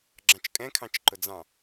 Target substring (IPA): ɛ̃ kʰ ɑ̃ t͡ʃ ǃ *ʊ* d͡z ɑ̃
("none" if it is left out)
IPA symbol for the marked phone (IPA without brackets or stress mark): ʊ